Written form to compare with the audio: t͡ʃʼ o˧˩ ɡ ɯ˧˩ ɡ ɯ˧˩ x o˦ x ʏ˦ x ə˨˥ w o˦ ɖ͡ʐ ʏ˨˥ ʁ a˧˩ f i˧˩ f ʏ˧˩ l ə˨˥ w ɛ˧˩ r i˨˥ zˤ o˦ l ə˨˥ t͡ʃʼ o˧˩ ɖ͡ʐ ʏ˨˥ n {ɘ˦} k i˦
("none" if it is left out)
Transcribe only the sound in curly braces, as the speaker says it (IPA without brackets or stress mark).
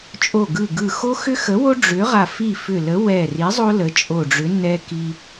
ɛ˦